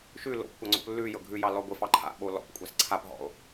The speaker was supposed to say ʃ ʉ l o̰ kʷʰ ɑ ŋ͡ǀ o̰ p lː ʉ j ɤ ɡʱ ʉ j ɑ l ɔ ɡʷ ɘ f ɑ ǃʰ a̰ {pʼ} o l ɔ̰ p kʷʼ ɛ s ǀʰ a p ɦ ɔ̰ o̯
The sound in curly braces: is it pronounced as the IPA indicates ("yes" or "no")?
no